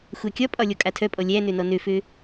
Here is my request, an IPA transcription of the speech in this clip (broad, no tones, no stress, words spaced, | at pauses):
xʷækʲɒpʼɒ lʲɔkʼatʰœpʼɔ lʲænø nɔnøfø